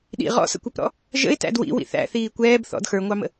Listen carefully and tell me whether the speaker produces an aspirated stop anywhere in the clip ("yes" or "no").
no